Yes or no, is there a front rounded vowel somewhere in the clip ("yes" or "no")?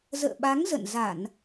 no